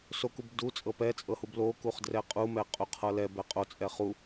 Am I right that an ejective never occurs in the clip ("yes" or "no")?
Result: no